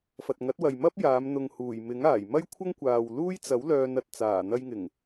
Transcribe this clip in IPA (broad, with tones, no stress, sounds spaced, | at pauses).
f ɐ˨ t̚ ŋ ɐ˨˥ t̚ w ɐ˨ j m ɐ˥ p̚ j aː˨˧ m n̪ ʊ˨ ŋ h uː˨˩ j m ɪ˨˥ ŋ aː˨˩ j m ɐ˥ j kʷʰ ɐ˥ ŋ kʷ aː˨ w l uː˥ j t͡s ɐ˨˥ w l œː˧ n ɐ˨ t̚ t͡s aː˨˩ n̪ ɐ˧ j ŋ ɪ˨˩ ŋ